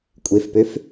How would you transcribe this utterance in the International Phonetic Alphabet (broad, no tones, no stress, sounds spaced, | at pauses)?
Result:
kʷʼ e f p ø f